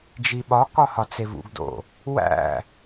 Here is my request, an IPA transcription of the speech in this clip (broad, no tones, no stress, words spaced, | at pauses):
d͡ʒiɓɒkɒ hɒt͡sevṵɡdo̰ | wæ̰